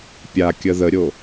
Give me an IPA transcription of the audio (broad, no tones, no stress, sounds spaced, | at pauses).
pʲ a kʲ ə ð ə ɾʲ o